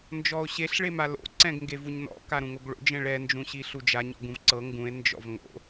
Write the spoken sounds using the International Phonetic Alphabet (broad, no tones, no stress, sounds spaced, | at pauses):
n d͡ʒ ɔ o̯ ɕ e ɬ ɭ e m a l o̰ ǀ ɛ̃ ɡ ŋ ɡ e v u ɲ n ɔ̰ k a ɾ ũ ŋ o ɡ ɭ o̰ d͡ʒ ɛ̃ ɭ ɛ n d͡ʒ ũ ɕ i ɬ u d͡ʒ a ɲ ɔ̰ ɡ ũ v ǀ ɤ ŋ ɡ ũ e̯ n d͡ʒ ɔ̰ v ŋ o̰